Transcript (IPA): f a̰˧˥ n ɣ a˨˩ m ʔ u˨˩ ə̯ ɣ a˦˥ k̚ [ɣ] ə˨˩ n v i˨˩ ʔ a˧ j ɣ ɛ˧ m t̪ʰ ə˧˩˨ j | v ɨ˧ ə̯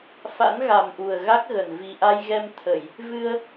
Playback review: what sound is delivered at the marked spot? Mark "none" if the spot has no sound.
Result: ɣ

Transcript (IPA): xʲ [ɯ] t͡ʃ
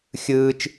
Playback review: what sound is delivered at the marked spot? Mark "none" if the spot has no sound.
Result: ɯː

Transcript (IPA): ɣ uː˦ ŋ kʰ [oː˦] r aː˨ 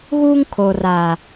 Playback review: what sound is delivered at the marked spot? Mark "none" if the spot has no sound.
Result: oː˨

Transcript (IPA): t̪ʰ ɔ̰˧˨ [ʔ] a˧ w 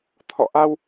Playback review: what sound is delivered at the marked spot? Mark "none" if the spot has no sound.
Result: ʔ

